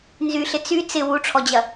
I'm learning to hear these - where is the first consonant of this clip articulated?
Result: tongue tip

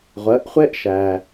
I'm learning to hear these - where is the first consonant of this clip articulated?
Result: uvula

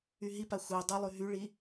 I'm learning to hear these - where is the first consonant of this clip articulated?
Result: throat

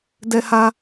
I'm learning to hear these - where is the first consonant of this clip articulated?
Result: tongue tip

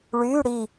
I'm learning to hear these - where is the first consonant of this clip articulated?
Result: retroflex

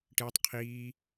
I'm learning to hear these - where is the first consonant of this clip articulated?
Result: retroflex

